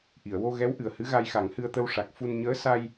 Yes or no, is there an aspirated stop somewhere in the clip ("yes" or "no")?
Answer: no